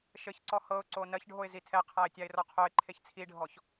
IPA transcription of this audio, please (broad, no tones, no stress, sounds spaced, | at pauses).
ʃ ɘ ç ǀ ɔ h ɤ ʊ̯ ǀ o n ɜ ç ɖʱ o ɪ̯ z i tʰ ɛ qʰ a ɪ̯ tʲ a ɪ̯ r ɔ qʰ o ɪ̯ ǃʰ e ç t͡sʰ i ɖʱ ɔ ç